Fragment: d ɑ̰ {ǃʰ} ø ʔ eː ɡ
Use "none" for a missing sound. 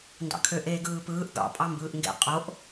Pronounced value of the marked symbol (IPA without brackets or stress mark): kʰ